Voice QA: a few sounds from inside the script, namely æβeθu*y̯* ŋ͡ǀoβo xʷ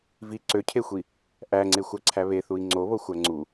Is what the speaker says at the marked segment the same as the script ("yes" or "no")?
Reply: no